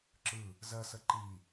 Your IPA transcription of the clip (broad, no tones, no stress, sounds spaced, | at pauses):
ǁ ɯ | z ɜ s ə ǃ i